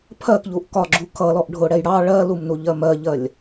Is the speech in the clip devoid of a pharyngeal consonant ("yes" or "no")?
yes